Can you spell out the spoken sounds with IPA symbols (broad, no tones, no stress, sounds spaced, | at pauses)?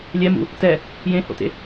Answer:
lʲ ɛ m ṵ | t ɛ | j ẽ h o̰ t ḛ